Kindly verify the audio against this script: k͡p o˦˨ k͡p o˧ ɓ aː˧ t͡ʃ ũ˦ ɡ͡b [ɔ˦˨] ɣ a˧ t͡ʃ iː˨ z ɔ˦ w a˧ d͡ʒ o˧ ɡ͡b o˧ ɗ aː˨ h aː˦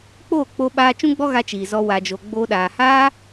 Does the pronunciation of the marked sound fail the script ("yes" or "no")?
yes